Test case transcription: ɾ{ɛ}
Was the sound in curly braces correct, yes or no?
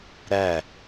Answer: no